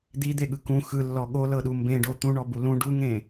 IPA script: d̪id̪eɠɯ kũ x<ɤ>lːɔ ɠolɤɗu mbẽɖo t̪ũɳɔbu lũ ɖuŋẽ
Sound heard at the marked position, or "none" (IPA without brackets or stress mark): ɯ